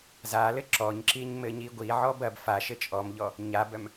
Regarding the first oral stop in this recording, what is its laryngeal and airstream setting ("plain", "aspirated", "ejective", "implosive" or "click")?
click